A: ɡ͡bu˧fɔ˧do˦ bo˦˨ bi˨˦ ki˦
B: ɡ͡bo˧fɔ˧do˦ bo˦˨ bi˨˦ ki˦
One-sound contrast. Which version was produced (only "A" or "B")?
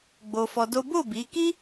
B